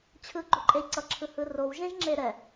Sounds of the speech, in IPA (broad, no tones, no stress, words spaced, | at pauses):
t͡ɕʰɯɡ͡ǃoǃʼej ǀʌǁʰɯhɯ rowʒẽʒŋ͡ǁe ɾɛ